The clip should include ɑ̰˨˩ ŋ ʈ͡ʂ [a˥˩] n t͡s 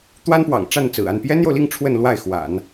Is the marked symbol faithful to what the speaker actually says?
yes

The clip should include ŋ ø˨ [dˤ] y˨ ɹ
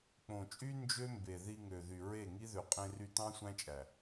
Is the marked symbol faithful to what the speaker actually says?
no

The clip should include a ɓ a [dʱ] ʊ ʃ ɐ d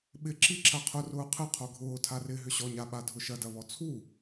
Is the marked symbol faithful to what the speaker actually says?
yes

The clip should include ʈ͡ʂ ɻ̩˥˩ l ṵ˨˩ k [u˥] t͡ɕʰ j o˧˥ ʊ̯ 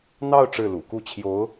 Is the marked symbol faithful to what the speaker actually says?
no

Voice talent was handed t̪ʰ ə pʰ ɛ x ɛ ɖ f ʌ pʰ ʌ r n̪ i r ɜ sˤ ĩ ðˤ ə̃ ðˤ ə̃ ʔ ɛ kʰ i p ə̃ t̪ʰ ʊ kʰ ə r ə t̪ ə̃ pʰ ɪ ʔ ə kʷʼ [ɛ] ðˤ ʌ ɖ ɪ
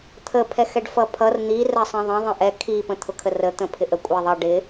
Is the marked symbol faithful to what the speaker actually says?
yes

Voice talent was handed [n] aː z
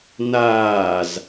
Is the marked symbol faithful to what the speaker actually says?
yes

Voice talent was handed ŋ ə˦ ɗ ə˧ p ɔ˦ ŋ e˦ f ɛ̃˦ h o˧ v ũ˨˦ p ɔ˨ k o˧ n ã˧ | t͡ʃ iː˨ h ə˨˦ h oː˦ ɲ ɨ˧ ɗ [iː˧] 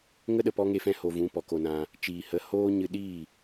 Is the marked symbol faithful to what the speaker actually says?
no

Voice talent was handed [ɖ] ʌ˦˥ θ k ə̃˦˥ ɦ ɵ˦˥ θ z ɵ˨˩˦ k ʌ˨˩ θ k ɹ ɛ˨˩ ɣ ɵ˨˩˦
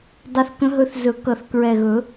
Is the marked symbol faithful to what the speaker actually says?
no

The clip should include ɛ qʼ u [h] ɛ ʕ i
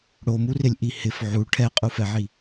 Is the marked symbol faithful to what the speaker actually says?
no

